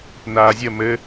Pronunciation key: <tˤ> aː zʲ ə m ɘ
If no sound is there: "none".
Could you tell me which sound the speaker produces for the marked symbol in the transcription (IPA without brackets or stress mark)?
n